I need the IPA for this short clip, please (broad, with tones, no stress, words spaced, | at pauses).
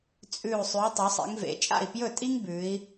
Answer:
t͡sʼʉ˧˩u̯ sˤʉ˩˧y̯tˤɵ˩˧sˤḛ˩˧ŋ vḛ˩˧ t͡ʃʼa̰˥˩i̯pjɵ˥˩tʼi˥ŋ bʉ˩˧i̯